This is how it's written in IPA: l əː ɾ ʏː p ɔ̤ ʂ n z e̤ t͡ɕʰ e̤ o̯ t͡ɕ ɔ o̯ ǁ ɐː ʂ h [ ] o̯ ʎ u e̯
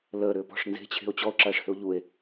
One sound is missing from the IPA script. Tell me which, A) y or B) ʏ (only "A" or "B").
B